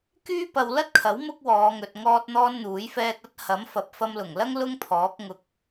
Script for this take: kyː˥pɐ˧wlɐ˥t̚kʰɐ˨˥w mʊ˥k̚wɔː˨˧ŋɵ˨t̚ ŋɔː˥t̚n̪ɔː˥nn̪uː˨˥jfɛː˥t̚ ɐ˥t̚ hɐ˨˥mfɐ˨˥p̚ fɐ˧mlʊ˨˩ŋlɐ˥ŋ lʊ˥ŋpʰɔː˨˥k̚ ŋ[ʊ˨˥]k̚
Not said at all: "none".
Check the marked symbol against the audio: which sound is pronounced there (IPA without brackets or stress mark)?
ʊ˧